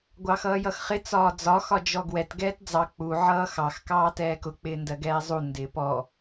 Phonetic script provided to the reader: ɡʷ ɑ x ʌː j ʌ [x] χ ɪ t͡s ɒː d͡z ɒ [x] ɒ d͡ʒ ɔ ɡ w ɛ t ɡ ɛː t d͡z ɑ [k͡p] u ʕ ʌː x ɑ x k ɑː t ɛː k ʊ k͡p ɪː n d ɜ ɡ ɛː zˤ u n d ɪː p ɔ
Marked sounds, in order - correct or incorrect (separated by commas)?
correct, correct, correct